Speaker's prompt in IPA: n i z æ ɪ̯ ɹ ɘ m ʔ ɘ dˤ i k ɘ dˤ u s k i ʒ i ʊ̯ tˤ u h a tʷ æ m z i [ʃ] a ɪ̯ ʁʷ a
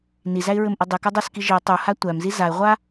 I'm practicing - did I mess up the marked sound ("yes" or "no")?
yes